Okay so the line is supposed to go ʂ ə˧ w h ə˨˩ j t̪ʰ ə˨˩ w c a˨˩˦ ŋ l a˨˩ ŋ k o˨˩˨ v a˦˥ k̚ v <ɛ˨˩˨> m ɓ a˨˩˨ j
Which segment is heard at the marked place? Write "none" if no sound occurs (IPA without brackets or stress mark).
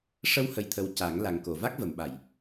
ə˨˩˨